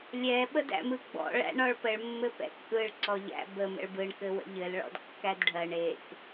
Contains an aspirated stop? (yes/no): no